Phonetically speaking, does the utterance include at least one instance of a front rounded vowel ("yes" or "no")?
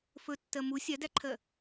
no